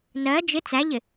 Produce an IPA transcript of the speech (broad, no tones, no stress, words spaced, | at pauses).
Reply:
nɜ d͡ʒɪ t͡sæʎɪ